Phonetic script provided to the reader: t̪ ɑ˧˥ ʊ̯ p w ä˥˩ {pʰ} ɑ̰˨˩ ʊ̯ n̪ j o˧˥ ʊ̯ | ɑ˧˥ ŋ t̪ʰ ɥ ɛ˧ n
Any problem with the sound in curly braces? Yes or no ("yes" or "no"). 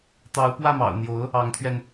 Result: yes